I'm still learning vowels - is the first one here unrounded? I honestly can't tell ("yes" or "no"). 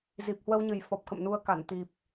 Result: yes